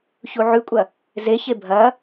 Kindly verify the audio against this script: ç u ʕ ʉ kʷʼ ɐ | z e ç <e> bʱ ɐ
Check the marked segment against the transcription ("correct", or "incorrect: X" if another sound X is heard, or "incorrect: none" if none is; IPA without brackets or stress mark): correct